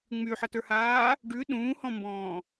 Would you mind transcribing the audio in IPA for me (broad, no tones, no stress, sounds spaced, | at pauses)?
ŋ͡m y ħ ʌ t ə˞ h aː | ɖ ʉ ɗ ũː h ɔ̃ m b ɔ̃ː